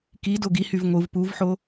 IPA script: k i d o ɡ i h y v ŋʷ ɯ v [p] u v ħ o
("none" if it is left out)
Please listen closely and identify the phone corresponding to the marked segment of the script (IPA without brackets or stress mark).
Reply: p